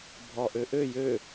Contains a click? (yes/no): no